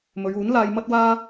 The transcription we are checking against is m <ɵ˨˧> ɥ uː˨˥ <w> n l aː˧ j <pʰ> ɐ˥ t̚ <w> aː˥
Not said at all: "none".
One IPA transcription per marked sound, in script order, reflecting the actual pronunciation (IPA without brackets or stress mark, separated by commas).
ɵ˨˧, none, m, w